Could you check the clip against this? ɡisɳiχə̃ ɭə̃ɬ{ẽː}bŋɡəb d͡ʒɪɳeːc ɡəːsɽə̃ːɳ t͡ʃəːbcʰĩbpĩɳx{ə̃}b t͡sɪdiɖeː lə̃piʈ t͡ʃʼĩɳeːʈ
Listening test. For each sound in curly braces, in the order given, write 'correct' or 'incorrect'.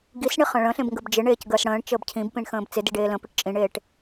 incorrect: ẽ, incorrect: ə̃ː

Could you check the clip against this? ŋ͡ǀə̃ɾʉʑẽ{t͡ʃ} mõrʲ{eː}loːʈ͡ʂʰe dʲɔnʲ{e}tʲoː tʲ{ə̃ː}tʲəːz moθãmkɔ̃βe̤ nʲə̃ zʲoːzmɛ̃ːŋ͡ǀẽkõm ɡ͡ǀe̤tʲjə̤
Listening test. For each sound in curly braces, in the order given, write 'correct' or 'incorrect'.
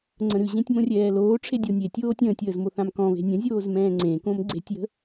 incorrect: tʲ, incorrect: ɛː, correct, correct

